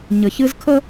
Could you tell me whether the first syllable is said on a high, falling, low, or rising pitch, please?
low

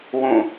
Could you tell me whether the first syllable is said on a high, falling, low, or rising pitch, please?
falling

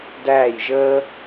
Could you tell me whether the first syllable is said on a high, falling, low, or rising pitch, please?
falling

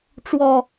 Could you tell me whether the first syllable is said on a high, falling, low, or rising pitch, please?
low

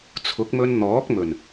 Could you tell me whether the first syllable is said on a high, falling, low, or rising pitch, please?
rising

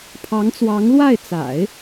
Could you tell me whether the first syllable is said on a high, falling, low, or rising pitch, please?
rising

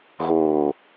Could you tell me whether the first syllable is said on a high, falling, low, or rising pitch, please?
low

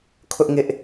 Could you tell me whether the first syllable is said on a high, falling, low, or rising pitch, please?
high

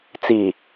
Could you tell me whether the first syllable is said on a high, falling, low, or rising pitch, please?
low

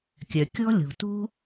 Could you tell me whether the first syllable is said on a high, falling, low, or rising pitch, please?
low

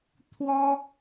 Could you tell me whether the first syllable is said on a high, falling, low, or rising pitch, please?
high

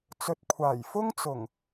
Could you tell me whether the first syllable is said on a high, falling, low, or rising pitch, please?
low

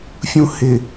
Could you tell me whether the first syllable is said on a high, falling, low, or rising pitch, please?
high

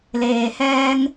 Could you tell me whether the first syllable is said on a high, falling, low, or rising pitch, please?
low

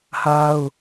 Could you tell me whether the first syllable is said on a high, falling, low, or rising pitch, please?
high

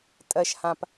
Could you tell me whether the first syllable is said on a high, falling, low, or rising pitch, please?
low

